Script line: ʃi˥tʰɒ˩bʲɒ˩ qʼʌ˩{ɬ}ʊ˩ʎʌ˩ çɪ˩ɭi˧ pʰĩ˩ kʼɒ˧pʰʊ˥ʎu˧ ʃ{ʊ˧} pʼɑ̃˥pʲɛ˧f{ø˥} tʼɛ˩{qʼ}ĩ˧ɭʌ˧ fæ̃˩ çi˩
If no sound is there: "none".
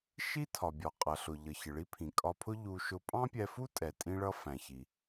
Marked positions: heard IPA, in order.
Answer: ɬ, ʊ˧, u˥, tʼ

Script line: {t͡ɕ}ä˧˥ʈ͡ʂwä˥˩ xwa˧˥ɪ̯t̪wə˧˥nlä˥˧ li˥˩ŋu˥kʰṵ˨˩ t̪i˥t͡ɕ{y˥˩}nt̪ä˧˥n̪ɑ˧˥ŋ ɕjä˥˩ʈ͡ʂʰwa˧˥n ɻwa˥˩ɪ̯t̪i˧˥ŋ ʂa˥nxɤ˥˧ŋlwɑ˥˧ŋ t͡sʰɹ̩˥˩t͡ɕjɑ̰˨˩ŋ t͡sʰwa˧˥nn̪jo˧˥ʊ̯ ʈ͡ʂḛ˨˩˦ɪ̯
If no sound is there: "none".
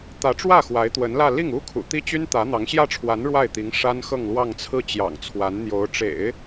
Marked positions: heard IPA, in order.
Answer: t̪, y˥

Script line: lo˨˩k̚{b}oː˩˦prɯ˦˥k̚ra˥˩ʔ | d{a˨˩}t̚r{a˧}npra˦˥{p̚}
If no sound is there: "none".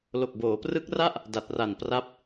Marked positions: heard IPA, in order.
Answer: b, a˨˩, a˨˩, p̚

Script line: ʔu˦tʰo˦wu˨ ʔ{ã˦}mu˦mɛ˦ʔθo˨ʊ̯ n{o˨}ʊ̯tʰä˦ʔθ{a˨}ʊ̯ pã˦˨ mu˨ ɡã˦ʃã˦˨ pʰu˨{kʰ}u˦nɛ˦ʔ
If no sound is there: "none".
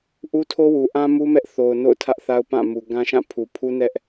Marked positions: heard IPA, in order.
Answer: ã˦, o̰˦˨, a˦, pʰ

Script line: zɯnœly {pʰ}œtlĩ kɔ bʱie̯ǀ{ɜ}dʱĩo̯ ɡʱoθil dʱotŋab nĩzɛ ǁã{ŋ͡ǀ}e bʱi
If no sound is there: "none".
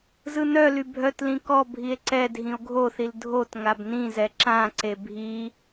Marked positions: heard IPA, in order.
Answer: bʱ, ɛ, ǀ

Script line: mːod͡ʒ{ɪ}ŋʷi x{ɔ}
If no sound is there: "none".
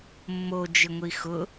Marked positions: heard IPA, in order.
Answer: ɪ, ʊ

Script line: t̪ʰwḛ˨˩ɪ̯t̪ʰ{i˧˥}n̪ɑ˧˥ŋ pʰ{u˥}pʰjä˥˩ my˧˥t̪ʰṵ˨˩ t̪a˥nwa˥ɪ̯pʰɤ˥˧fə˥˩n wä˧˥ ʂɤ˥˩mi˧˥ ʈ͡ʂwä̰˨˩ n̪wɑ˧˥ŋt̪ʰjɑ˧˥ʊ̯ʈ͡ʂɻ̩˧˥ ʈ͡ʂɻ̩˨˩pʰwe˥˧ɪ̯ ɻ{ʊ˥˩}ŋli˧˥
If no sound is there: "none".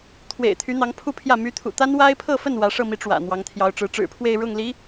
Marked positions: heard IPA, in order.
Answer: y˧˥, u˥˧, ʊ˥˩

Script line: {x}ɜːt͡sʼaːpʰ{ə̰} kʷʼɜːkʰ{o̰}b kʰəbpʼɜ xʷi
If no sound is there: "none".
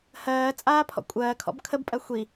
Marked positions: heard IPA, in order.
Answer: h, ɔ̰, ɔ̰

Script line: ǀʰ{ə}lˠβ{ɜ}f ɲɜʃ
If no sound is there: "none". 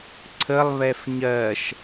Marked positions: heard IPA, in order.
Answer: ə, ɛ

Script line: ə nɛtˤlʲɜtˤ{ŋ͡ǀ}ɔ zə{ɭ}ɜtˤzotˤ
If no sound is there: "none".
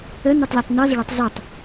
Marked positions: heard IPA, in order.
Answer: n, ɭ

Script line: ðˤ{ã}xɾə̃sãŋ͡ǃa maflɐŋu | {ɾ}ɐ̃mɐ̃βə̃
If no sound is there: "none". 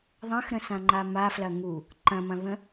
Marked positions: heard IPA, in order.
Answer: ɐ̃, ǃ

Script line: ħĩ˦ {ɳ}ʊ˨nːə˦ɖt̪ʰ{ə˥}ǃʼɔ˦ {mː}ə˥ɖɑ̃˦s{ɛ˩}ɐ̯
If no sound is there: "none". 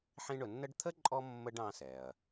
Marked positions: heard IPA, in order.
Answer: ɳ, ə˥, mː, ɛ˩

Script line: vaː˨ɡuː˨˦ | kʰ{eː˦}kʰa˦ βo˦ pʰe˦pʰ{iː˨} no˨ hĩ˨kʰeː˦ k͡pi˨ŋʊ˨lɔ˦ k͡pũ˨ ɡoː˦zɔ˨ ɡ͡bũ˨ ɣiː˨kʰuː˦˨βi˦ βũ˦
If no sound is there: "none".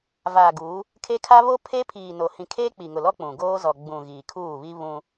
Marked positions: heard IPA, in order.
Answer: e˦, iː˨

